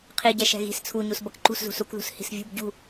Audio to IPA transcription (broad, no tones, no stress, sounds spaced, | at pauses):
qʰ i ɟ ɛ ʃ ɛ̤ ɣ i̤ s t͡sʰ u ɲ u s b ʌ k ǃ ṳ s z ṳ s u k ð ṳ s h i̤ s vʲ ṳ b ɟ ṳ